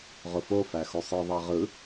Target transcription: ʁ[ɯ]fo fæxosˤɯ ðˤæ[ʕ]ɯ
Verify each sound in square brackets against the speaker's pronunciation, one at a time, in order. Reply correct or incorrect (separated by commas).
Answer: incorrect, incorrect